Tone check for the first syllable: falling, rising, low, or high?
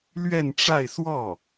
falling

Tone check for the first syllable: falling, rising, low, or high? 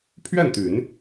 falling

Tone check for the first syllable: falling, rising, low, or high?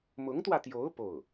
rising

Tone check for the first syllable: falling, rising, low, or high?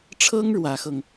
high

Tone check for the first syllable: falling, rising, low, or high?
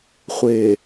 low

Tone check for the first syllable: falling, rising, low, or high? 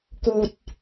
low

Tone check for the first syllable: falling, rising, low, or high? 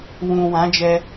low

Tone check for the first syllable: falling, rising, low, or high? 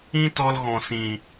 high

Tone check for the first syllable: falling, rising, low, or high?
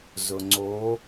low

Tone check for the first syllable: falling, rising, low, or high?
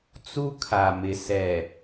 high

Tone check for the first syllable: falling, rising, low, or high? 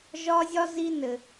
high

